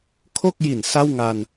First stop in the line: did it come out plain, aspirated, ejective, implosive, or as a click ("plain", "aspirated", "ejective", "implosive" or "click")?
aspirated